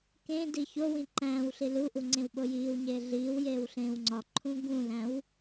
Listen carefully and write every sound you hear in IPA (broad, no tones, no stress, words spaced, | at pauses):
kẽdi çowĩ ǃæ̃ːw ɬiluʔu ŋ͡ǀẽwɓojiːwɲeː ɮiːwjeːw ɬẽːwŋ͡ǀɒǃʰũ ɡũlæ̃w